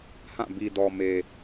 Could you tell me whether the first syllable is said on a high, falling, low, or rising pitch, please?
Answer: falling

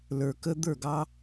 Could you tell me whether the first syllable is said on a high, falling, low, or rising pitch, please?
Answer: low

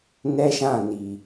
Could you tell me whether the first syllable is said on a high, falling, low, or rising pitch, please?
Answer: high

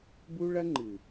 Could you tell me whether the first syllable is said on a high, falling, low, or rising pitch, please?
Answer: high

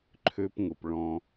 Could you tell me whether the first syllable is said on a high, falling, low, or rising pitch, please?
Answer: high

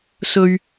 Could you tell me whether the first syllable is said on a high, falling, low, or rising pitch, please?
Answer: high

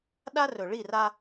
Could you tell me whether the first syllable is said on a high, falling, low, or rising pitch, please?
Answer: high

